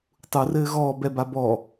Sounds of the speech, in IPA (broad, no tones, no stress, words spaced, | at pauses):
tˤurɘː ɣɔːbɛba bɔ